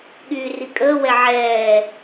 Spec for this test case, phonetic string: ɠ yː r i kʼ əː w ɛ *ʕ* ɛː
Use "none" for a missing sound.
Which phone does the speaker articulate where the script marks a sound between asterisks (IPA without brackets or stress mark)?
ʕ